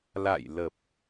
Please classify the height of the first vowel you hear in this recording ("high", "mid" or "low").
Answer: low